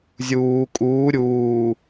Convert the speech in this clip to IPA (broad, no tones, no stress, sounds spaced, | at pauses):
zʲ uː kʼ uː ɾʲ uː